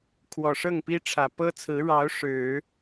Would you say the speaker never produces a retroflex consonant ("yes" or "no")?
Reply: no